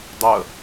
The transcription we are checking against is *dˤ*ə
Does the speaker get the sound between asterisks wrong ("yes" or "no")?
no